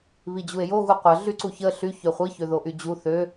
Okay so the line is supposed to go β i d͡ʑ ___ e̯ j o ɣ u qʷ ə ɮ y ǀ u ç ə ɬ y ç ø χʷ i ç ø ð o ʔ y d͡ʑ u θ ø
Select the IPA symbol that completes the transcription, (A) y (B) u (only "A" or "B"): B